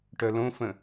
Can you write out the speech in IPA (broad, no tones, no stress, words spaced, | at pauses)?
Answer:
ʈœlõfə̃